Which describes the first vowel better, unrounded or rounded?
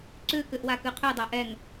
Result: rounded